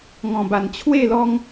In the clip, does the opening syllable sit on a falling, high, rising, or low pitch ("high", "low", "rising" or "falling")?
low